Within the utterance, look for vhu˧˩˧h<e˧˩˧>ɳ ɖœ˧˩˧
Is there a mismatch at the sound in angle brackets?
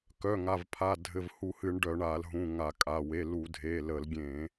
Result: yes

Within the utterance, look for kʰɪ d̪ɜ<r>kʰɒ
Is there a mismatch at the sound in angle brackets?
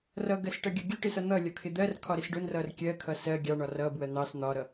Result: no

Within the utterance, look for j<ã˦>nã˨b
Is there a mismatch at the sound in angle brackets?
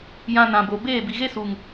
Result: yes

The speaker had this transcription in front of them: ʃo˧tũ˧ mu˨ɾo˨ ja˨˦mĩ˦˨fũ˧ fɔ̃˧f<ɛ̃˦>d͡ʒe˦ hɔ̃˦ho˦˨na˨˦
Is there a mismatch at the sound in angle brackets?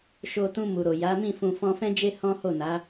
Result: no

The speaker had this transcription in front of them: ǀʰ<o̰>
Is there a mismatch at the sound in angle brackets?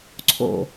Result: no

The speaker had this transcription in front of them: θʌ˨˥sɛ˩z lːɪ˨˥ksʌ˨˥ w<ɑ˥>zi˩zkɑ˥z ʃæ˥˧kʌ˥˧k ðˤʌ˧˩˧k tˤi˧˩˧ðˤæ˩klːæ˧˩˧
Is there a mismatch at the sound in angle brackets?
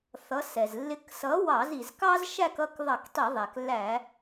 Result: yes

